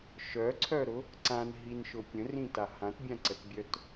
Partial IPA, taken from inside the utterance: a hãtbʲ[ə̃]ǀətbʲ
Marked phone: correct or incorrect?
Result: incorrect